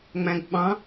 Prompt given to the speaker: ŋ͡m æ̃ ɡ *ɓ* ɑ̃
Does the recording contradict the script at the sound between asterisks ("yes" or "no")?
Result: no